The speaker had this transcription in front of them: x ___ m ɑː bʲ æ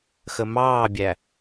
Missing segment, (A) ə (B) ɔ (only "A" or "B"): A